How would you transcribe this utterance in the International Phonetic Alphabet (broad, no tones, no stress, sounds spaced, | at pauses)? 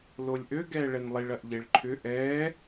l o lʲ ʔ ø ɡ ɛː ɭ ɛ n lˠ i ɭ ɐ ʔ ʎ e ɭ ǃʰ ʏ ʔ ɛː